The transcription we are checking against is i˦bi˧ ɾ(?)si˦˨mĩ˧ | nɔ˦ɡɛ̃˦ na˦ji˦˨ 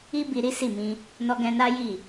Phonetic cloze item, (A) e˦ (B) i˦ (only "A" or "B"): B